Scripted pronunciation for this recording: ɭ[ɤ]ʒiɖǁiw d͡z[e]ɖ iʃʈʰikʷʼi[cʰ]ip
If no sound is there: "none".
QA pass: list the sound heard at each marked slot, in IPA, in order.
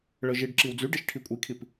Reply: ɤ, y, kʰ

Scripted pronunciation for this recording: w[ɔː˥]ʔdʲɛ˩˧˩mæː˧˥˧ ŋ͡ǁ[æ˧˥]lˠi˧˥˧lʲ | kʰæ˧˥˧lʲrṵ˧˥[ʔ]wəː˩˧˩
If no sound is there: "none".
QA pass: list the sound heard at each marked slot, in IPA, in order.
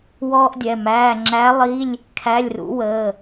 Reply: ɔː˥, æ˧˥, none

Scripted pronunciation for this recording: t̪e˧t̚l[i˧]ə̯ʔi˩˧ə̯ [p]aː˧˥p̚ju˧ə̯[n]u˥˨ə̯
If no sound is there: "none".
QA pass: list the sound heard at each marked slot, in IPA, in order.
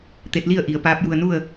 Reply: i˥˨, p, n

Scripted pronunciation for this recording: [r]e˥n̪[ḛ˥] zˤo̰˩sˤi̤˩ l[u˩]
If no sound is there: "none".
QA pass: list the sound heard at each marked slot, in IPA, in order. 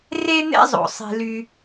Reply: r, ḛ˥, y˩

